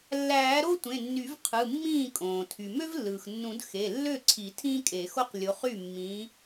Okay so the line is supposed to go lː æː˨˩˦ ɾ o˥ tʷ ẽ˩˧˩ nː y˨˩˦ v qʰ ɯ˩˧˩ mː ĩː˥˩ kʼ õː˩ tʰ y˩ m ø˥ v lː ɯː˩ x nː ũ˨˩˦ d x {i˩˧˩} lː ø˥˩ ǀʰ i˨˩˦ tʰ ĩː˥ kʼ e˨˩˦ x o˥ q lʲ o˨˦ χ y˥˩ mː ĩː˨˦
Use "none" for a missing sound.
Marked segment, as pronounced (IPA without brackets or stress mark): e˩˧˩